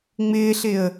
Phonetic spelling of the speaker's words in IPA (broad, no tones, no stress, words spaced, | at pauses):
ŋ͡mɪːɬɪə̯